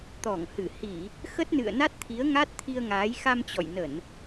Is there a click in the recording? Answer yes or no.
no